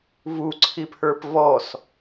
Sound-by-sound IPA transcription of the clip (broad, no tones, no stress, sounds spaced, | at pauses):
v u ǀʰ i pʰ ə˞ p v ɔ s